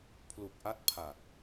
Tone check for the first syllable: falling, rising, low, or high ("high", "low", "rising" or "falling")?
low